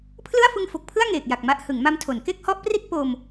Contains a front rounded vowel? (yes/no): no